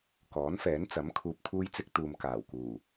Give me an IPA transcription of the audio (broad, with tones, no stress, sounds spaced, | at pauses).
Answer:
k ɔː˨˥ n f ɛː˨˥ n t͡s ɐ˨˥ m kʰ uː˧ p̚ kʰ uː˥ j t͡s ɪ˥ k̚ t̪ uː˨ m k aː˨˩ w k uː˨˩